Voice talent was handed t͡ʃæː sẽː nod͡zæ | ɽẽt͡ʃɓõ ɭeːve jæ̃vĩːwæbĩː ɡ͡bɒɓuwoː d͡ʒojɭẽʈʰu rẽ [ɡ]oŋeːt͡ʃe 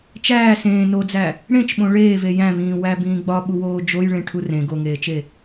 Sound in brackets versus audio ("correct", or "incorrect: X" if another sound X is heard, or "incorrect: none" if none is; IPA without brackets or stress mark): correct